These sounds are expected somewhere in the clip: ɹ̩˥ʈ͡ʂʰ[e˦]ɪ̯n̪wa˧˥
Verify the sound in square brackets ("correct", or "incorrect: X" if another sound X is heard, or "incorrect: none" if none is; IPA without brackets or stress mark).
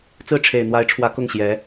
incorrect: e˨˩